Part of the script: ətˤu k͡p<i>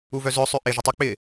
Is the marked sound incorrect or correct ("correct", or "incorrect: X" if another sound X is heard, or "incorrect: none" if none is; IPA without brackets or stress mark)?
incorrect: ɪ